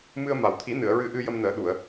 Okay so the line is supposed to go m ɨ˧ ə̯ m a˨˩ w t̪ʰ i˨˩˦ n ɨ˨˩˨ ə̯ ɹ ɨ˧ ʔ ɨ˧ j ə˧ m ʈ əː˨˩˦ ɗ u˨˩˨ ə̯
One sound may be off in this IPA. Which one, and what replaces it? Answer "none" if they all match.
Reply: ʈ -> n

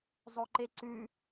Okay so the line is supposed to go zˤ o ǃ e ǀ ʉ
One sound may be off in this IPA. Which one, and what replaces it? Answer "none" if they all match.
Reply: none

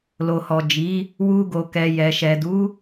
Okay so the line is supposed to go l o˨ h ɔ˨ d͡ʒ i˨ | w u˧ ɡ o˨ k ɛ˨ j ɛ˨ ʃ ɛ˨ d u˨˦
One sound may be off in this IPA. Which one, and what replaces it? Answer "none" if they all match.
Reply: i˨ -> i˨˦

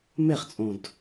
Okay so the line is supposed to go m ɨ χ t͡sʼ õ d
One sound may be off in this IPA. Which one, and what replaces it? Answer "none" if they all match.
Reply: ɨ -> e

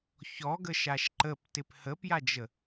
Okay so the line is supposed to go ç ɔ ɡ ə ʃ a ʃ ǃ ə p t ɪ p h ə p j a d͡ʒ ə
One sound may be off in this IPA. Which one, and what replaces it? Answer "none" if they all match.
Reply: none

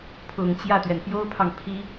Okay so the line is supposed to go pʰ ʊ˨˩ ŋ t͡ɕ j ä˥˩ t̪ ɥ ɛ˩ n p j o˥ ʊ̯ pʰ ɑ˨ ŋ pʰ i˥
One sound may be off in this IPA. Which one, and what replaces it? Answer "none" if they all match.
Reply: none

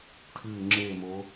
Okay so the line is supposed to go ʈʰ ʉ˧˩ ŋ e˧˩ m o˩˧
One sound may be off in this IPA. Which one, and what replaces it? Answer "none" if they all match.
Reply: ŋ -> ŋ͡ǁ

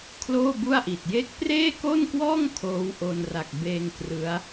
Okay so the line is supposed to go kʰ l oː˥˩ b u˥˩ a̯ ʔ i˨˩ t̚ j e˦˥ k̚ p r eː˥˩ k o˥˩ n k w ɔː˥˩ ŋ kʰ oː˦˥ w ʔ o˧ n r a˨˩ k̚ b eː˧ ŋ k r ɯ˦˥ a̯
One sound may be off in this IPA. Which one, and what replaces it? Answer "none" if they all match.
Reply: none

